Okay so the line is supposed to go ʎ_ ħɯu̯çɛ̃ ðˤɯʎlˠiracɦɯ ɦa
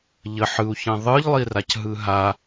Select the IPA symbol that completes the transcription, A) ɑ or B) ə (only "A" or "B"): B